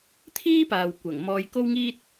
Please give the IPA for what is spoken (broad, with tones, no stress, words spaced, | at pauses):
t̪ʰiː˥paː˨w kʷɐ˨˩ŋ mɔː˧jko˥wŋiː˥t̚